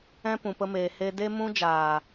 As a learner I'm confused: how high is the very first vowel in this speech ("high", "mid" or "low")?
mid